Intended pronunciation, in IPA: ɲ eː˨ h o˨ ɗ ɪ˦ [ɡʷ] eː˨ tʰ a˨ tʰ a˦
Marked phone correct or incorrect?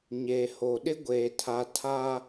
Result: correct